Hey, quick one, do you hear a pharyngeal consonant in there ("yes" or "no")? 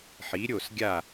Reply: yes